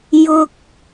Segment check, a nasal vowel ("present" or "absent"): absent